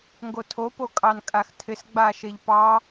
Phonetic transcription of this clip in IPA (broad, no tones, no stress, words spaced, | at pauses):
ŋɡotʰopo kʼɑnkʼaxtʰɪs ɡ͡baʃeʎpɑ